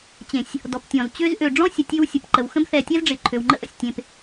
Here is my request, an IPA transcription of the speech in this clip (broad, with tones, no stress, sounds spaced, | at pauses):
t͡ɕ ẽ˨ sʲ | d ɔ˨ p tʲ ɔ̃˨ z t͡ɕ ø˦ z ʔ ø˨ ɖ͡ʐ ɔ̃˦ sʲ ə˨ tʲ ø˦ w sʲ ə˨ p ǃ ə˨ w x ə̃˦ b θ ɛ˨ tʲ ɛ˦ z ɖ͡ʐ ɪ˨ ǃʰ ø˨ w ŋ͡ǃ ə̰˦ ʔ ə̰˨ sʲ tʲ ẽ˨ p